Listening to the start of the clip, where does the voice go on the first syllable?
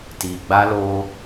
low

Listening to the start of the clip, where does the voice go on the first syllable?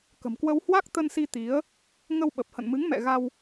low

